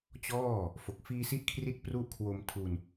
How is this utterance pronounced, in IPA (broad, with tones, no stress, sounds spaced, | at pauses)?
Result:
t͡ɕ ɔː˥˩ | f o˨˩ k̚ f iː˧ s i˦˥ ʔ kʰ r i˦˥ t̚ p r u˥˩ ʔ kʰ w o˧ m tʰ u˧ n